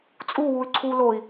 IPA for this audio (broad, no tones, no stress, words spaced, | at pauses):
t͡sʼuwuy̯ ǀʰu loi̯